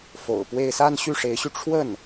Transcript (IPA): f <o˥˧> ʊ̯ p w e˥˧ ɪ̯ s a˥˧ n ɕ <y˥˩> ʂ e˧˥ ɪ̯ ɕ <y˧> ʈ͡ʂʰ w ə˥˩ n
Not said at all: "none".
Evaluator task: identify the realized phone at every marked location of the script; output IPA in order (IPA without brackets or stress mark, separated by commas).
o̰˨˩, y˥˩, y˧